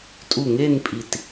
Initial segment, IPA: tʼ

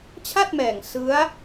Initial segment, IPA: t͡ɕʰ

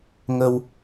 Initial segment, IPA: ŋ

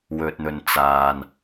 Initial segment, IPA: w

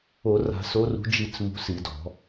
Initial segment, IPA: o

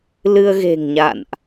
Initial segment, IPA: l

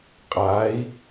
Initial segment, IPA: qʼ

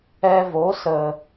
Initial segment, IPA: ɛ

